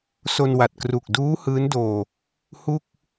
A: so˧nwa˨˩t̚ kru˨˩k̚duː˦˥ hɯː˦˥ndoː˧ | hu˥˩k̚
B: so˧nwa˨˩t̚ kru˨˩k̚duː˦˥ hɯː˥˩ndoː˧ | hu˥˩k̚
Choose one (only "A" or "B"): A